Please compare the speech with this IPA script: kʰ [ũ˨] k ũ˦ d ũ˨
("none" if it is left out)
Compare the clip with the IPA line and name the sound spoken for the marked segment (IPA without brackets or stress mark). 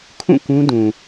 ũ˦˨